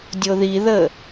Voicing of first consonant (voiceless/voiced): voiced